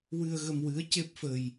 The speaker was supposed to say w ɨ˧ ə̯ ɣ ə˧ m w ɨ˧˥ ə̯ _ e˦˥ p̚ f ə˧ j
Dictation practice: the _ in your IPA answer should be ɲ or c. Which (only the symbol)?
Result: c